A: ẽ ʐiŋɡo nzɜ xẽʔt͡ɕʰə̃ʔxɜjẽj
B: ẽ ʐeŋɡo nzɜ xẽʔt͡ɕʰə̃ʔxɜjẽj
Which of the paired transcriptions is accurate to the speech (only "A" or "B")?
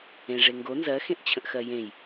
B